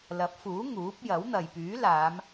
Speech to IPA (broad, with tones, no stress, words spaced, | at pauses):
lɐ˨˥p̚fuː˨˥ ŋuː˨˥p̚ jɐ˨˥wn̪ɐ˨j pyː˨˥laː˨˧m